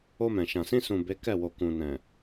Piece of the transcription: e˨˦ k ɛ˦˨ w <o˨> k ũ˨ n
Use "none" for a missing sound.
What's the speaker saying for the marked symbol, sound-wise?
o˨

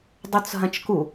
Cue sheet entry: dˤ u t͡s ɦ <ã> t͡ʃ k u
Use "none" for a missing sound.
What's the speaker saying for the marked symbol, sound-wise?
ɐ̃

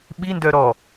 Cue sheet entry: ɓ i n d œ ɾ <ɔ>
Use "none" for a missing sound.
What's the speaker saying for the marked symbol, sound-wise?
ɔ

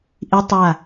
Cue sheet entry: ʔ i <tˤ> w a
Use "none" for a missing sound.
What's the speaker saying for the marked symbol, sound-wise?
tˤ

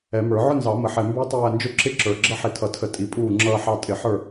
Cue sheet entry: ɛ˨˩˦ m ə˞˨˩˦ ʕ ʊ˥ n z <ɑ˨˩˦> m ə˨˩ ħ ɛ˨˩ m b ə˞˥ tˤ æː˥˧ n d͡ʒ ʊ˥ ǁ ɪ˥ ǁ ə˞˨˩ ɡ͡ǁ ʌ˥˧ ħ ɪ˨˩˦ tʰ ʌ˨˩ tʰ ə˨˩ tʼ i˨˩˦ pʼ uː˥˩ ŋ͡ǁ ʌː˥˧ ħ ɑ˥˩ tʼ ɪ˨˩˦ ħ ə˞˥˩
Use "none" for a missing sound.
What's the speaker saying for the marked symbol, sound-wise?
ɑ˨˩˦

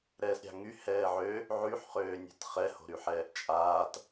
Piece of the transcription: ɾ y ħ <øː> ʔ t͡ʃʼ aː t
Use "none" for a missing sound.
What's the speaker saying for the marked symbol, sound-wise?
ɛː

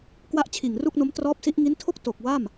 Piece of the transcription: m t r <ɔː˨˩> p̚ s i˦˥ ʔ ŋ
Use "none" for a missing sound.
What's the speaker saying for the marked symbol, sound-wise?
ɔː˦˥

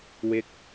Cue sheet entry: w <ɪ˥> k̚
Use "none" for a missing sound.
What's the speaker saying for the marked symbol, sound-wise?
ɪ˥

